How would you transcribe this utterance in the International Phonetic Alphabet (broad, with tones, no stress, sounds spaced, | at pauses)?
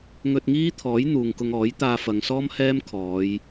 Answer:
ŋ ɵ˧ t̚ ŋ iː˥ t̪ʰ ɔː˨˥ j n̪ uː˨ ŋ k ʊ˧ ŋ ɔː˨˥ j t̪ aː˧ f ɐ˨ ŋ s ɔː˥ m h ɛː˥ m kʰ ɔː˨˧ j